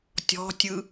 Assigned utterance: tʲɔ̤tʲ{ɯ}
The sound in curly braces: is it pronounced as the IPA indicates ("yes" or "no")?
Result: yes